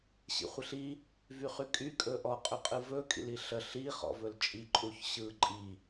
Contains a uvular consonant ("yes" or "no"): yes